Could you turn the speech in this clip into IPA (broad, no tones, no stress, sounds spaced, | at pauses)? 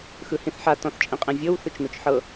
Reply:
x ɯ h ĩ θ ħ a t ɔ̃ θ t͡ʃʼ ĩ qʼ ĩ vʲ ɤ w θ ɯ t͡ʃ n o t͡ʃ ħ ɤ